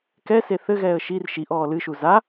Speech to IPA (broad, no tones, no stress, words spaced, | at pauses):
kɛse θɘɣɛːə̯ ʃir ʃiʔ ɔːlɨʃu za